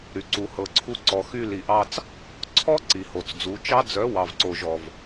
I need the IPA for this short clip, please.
ɾy˨ǀu˨ hɤ˨ǀʰu˧ǀɔ˨ xy˧ li˨ʔɑ˧t͡s | ǀʰɔ˦ ǀi˨ho˨t͡sd͡zu˨˦ t͡ʃɑ˦ d͡zœ˨˦ wɑ˨vǀo˨ʒɔ˨v

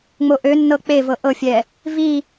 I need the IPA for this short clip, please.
ŋ͡moʔønːɤ k͡pevɤ ʔɤfʲɛ | vi

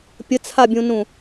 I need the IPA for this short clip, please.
pʲət͡sʰabʲũnũ

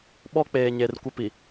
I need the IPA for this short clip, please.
ɓɔ˦k͡peː˨ɲe˨r kʷɪ˦pi˨

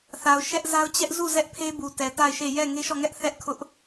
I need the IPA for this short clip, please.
θa˨ʊ̯ʃɛ˦ʔza˦ʊ̯ t͡ɕɛ˦ʔ zu˦˨ zɛ˦ʔpʰe˦ bu˨tɛ˨ta˦˨ɪ̯ʃe˦˨ jɛ˦˨ŋe˦ʃɔ˦˨ŋɛ˦ʔ θɛ˦ʔkʰʊ˦ʔ

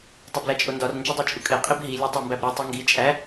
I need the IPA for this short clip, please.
tˤeblæt͡ʃʼondɒr nd͡ʒodˤæt͡ʃʼukʼe qʼibɦi lʲɒtˤæmbæbɾʲu tˤeŋɡi t͡ʃʼæ

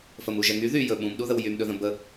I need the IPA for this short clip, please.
fəmu ʒɛŋy ðyjɵ ɓũmɗuðəw jymɗɵðə̃ bə

